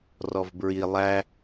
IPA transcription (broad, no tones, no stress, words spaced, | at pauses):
rɔvbɹi lˠæ